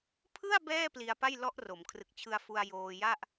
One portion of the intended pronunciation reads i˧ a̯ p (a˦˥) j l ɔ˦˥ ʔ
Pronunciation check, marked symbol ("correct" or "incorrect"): incorrect